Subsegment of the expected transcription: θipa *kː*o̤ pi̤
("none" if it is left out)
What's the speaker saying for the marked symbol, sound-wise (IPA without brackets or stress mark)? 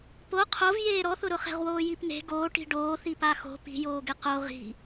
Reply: x